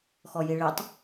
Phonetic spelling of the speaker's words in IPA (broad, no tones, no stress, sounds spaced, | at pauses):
x ɔ j i ɭ i tˤ